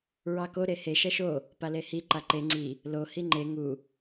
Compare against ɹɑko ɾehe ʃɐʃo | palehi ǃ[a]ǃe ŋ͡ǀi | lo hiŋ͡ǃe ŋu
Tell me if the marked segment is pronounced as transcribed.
yes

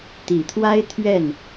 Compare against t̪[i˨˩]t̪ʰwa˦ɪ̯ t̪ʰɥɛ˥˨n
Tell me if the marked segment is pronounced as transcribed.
yes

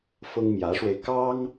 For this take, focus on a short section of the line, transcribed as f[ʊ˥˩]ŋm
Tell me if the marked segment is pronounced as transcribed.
no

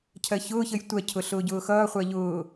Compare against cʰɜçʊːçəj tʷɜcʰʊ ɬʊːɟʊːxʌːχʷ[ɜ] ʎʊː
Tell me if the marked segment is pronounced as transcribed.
yes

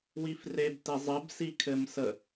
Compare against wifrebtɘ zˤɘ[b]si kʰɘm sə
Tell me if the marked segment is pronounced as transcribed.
yes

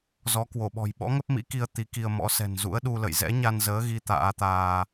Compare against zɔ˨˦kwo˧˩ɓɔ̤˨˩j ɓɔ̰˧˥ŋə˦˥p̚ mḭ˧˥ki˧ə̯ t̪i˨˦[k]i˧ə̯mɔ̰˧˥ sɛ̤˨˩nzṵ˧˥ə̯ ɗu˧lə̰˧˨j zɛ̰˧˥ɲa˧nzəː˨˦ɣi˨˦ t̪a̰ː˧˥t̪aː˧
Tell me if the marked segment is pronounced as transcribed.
yes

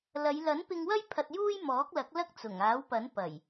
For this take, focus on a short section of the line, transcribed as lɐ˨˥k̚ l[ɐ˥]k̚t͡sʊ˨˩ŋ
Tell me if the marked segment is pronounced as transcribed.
yes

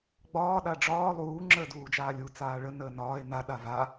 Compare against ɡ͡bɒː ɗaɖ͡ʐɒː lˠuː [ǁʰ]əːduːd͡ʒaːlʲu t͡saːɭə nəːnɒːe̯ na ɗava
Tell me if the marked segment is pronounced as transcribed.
no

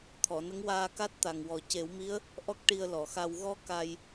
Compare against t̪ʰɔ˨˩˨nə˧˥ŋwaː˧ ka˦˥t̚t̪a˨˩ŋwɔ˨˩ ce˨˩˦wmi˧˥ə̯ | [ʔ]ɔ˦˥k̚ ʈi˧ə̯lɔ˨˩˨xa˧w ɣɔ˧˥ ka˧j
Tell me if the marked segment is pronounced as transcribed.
yes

